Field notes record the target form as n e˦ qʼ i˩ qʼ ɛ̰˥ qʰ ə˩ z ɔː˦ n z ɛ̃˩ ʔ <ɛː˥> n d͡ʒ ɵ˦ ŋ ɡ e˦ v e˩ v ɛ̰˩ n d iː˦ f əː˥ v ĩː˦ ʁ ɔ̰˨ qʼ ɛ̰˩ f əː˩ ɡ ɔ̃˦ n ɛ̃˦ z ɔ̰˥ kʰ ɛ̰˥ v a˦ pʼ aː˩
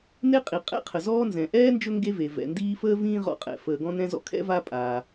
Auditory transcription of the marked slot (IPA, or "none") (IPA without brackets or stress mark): ɛː˥